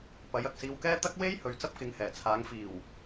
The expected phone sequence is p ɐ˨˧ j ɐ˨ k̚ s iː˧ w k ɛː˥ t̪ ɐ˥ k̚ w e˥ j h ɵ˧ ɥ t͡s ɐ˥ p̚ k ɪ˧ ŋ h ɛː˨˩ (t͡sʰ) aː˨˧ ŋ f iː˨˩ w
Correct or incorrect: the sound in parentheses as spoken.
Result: correct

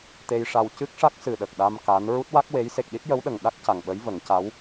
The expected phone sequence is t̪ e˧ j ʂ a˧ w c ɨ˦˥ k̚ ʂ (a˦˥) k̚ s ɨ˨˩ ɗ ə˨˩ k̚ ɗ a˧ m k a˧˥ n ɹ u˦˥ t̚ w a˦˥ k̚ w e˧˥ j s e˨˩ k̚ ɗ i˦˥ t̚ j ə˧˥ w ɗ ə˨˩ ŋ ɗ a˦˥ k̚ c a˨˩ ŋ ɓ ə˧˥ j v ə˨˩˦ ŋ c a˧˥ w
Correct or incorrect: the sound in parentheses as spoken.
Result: correct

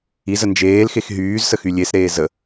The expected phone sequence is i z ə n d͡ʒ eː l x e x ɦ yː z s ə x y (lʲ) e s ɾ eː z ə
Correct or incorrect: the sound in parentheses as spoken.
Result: correct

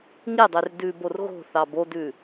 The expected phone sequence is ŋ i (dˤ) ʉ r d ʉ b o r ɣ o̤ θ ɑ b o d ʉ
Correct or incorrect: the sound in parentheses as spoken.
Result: correct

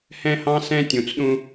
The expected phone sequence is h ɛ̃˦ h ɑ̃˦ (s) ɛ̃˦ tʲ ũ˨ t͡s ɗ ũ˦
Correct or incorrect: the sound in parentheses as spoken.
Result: correct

